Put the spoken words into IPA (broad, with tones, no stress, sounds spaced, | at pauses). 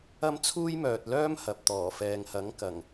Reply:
ɐ˥ m t͡sʰ uː˥ j m œː˨ t̚ l œː˥ m h ɐ˨ p̚ t̪ ɔː˨˩ f ɛː˨ ŋ h ɐ˨˥ ŋ k ɐ˨˩ ŋ